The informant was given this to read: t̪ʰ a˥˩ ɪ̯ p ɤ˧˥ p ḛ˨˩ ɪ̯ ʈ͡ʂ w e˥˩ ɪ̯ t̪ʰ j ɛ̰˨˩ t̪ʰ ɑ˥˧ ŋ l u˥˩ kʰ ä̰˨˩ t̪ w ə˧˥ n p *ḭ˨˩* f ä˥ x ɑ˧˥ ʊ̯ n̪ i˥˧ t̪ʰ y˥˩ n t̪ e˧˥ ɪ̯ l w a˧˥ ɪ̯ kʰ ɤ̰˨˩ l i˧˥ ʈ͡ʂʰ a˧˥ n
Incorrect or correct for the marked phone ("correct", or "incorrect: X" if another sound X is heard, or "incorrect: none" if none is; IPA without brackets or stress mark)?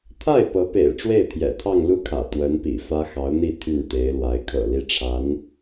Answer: correct